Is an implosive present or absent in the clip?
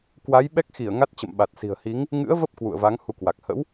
present